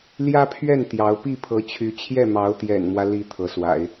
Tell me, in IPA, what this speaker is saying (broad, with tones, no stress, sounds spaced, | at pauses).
l j ä˥ pʰ ɥ ɛ˥˩ n t̪ j ɑ˧˥ ʊ̯ p i˥˩ pʰ ɤ˧˥ t͡ɕʰ y˧˥ t͡ɕʰ j ɛ˥˩ m ɑ˧˥ ʊ̯ t̪ j ɛ̰˨˩ n m w ä˦ l i˧˥ t̪ʰ ɤ˧˥ s w a̰˨˩˦ ɪ̯